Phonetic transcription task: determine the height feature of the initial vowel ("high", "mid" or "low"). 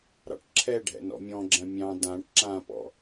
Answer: low